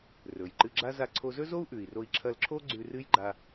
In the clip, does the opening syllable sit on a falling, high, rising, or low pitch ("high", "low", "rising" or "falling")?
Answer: low